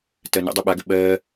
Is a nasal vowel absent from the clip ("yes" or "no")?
yes